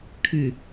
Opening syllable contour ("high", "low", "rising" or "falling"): low